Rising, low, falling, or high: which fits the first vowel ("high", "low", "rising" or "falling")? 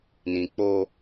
low